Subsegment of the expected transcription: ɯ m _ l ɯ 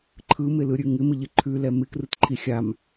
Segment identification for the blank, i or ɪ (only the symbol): ɪ